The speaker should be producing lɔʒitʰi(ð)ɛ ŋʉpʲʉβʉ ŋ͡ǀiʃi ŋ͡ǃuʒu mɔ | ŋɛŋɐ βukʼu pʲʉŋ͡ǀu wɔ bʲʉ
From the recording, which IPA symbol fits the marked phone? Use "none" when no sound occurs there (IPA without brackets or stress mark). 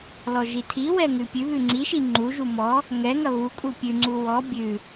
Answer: w